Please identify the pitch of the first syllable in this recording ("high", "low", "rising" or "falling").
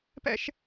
high